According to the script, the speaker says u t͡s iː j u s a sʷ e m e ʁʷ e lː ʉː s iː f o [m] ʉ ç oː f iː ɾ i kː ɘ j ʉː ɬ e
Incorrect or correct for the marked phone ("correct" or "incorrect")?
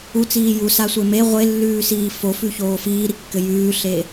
incorrect